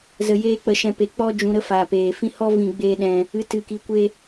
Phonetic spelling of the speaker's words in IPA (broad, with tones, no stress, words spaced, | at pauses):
zə˧ jeː˦k͡pə˧ ʃɛ̃˦pe˧ k͡pɔ˦ d͡ʒũ˧ɾə˦faː˨ peː˨fĩ˦ hɔ˦ vĩ˧ɡ͡beː˦ɗɛ̃˧ | ɨ˧ tɨ˧ki˧kʷe˦